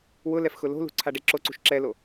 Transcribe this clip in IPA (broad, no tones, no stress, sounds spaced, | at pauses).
w ʊ l ɛ f x ʊ l o̤ l ṳ ǀʰ a ɖ e ǁ o ǀ ṳ ʃ ǁ ɛ l o